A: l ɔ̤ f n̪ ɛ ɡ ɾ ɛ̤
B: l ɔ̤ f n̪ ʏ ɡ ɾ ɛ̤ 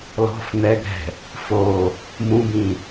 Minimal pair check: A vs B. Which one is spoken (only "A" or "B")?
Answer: A